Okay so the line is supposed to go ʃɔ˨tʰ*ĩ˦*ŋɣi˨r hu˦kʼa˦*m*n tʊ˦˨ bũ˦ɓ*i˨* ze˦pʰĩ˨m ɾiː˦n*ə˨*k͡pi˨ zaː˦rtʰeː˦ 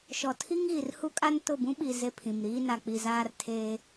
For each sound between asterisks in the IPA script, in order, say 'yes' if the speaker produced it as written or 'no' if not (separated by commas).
no, no, yes, no